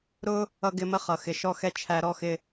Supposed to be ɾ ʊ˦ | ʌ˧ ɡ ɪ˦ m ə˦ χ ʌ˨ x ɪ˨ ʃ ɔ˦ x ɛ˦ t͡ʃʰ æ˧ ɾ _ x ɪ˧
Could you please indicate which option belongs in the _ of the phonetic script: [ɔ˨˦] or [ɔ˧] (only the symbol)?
ɔ˧